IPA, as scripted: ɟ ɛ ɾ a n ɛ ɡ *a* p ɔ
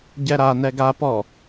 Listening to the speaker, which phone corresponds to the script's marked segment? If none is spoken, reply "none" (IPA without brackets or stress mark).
a